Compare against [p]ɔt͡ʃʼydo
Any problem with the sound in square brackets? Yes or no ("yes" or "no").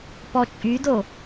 no